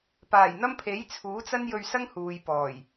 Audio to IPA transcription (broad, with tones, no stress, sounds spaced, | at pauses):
p aː˨˩ j n̪ ɐ˥ m pʰ e˨˥ j t͡sʰ uː˨˥ t͡s ɐ˥ n j ɵ˧ ɥ s ɐ˥ ŋ h uː˨ j p ɔː˨˩ j